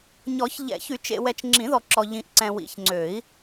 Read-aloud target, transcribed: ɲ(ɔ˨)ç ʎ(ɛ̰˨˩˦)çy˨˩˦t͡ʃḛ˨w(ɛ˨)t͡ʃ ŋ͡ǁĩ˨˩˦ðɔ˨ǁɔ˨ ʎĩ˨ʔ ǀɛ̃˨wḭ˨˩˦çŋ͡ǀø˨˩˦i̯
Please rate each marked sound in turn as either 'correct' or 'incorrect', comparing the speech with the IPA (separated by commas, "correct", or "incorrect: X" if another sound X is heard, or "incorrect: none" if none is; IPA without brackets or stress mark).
incorrect: ɔ˨˩˦, correct, correct